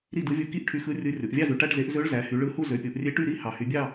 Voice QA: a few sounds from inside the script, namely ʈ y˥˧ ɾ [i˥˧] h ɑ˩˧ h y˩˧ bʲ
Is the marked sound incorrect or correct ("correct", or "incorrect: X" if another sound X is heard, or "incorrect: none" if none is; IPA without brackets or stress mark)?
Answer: correct